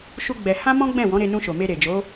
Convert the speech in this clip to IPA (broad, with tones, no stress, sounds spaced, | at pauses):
ʃ u˦ ɡ͡b ɛ˧ h ã˦ m ɔ̃˦ ɡ͡b ɛ̃˦˨ w ɔ̃˨˦ ɾ e˧ n ũ˧ ʃ o˨ m e˧ ɾ e˨ d͡ʒ o˨˦